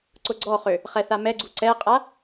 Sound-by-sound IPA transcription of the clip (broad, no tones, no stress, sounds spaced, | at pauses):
ǀ ʊ ɡ͡ǀ ɔ χ ø | χ ɛ θ a m ɛ ɡ͡ǀ u ǀ ɛ qʼ a